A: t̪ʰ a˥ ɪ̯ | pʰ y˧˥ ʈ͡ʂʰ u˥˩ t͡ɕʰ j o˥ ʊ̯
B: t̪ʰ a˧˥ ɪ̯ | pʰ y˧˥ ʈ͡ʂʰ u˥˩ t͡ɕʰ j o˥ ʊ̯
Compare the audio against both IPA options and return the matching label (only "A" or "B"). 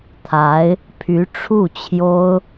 B